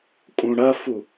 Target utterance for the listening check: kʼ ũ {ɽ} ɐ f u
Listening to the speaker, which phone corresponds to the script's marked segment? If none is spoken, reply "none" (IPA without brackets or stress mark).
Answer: ɽ